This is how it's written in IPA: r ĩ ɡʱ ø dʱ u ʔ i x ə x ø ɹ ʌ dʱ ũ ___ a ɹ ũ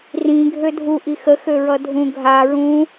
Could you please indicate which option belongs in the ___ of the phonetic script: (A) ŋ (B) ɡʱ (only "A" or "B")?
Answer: B